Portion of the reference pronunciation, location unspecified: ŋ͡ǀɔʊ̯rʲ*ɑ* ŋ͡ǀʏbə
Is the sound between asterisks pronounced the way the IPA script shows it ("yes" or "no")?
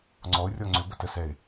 no